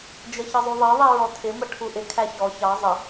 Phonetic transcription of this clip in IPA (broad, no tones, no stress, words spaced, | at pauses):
d͡ʒəçəzˤuðˤɜ ðˤiɹɔtʰɪ məʈʰuʔɪ kʰæçɔ çɑ zˤə